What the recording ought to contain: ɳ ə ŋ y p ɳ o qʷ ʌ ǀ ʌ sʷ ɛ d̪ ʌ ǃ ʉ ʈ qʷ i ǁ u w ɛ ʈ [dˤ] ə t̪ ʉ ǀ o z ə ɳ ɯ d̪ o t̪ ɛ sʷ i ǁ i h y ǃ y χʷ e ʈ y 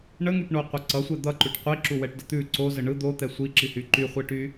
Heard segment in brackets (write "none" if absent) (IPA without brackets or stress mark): d